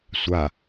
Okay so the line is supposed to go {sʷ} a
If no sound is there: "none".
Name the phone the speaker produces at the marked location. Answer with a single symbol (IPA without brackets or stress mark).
sʷ